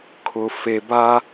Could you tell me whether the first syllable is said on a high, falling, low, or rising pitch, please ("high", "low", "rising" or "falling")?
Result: high